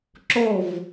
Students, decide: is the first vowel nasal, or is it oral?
oral